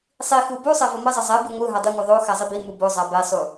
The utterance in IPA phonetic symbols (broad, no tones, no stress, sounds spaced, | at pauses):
sˤ i x u b u sˤ ɛ v o m ʌ zˤ ʌ zˤ ɛ b i ŋʷ ɯ ɦ a dˤ i ŋʷ ɯ ðˤ o x a zˤ i b i m u b o zˤ a b ɛ sˤ u